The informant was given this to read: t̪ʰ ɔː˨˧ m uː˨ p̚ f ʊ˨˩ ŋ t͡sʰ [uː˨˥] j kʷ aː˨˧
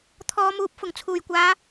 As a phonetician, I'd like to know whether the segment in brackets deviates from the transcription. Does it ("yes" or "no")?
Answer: yes